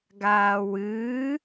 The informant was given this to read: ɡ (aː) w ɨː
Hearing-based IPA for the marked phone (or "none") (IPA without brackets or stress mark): aː